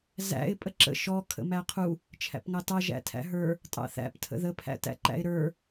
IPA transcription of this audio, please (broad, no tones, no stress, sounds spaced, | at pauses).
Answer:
z æ̰ ɪ̯ pʼ ə ǁ ə̰ ʃ ɔ kʰ ə̰ m æ qʰ u | t͡ʃʰ æ̰ p ŋ ɑ t ɑ ʒ æ̰ tʰ æ̰ ɦ ə˞ | tʼ ɑ̰ θ æ̰ p tʰ ə̰ ð ə pʰ æ̰ t æ̰ ǃ æ̰ ɪ̯ ɾ ə˞